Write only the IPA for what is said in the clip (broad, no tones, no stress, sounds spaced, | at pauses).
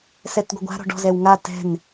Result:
s ɛ t ɡʷ ə ɡʷ a̤ ɾ ɔ̤ ɖ ɔ̤ z ɛ w ŋ a t ɛ̤ n